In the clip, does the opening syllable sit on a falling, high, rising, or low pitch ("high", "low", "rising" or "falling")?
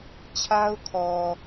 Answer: high